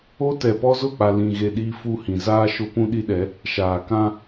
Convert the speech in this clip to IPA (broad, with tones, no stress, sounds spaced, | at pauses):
o˦ t ɛ˨ p ɔ˦ z ʊ˦˨ k͡p a˨ l ĩ˨ ɣ e˨ ɗ iː˦ f u˦ h ĩ˨ z aː˦ ʃ ʊ˦ p ũ˦ ɗ i˦ ɗ ɛ˨˦ | ʃ aː˨ k ã˦